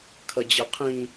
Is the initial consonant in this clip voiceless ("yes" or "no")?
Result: yes